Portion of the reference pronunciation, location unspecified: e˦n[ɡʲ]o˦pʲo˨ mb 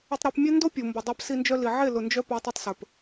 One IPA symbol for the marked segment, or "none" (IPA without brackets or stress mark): d